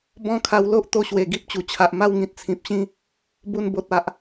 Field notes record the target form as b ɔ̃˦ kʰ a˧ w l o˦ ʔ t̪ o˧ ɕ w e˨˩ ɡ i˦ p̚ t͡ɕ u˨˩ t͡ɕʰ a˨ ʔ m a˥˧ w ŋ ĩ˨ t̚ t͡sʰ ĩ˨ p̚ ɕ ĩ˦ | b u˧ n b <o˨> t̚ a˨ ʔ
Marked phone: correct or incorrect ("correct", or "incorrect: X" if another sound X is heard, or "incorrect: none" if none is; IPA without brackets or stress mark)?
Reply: correct